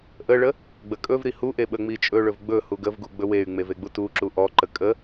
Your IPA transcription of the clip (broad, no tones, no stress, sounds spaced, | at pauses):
ʔ ə ɭ ə | ɡ͡b ə kʼ ɵ v ɾ i h u ʔ e ɓ ə ŋ͡m i t͡ʃʼ ɵ ɭ ɵ v ɡ͡b ɵ h u ɡ ə v ɡ u ɡ͡b ɵ w e y̯ ŋ͡m e v e ɡ͡b u t u ǁ u ʔ ɔ ǃ ə kʼ ə